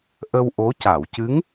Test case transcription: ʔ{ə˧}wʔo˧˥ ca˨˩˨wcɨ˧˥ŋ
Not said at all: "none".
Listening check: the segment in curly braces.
ə˧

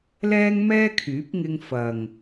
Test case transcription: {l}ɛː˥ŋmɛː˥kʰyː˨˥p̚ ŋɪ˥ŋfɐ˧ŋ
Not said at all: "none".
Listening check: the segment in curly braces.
l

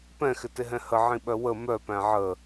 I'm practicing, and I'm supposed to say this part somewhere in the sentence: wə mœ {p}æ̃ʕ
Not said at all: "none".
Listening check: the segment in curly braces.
p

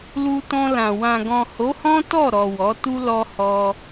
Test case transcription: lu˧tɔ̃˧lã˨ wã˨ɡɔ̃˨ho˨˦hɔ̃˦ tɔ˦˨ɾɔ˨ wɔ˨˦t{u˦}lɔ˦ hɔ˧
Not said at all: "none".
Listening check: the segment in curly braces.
u˦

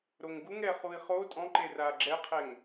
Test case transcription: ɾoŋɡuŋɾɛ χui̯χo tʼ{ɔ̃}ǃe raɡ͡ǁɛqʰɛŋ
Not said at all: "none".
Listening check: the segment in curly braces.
ɔ̃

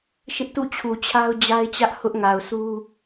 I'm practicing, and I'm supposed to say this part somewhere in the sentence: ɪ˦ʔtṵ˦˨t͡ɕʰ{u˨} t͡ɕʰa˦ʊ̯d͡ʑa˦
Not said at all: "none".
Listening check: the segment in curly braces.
u˨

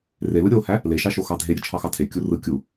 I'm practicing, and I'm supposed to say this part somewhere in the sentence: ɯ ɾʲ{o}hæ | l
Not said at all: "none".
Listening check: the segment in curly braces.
o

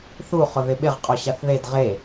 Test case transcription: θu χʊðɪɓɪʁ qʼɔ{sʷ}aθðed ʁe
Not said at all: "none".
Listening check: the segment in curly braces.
ɕ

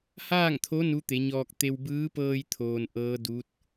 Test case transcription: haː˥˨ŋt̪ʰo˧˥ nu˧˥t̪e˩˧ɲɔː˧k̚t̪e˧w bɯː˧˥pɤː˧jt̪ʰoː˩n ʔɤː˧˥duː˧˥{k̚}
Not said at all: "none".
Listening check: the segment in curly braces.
t̚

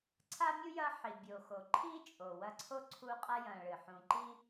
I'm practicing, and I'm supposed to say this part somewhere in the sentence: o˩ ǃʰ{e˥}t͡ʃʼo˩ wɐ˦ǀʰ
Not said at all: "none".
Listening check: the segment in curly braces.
i˥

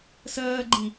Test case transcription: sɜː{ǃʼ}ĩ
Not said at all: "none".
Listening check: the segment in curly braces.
ɡ͡ǃ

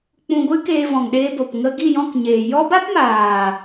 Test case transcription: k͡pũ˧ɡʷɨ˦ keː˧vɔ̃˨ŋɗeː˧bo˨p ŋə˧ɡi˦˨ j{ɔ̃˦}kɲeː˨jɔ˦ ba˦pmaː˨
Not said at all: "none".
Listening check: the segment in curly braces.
ɔ̃˦˨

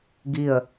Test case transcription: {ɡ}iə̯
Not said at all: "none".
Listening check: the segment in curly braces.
ɡ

